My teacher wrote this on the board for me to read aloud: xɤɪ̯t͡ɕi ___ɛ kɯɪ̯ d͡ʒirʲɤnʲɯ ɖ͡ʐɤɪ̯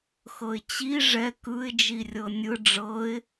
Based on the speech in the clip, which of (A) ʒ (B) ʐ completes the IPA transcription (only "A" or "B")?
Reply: B